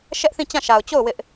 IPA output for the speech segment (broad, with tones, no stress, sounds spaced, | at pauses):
ʃ ɛ˦ ʔ θ ĩ˦˨ t͡ɕ ã˦˨ ʃ a˨ ʊ̯ t͡ɕ o˦˨ ʊ̯ w ɪ˦ ʔ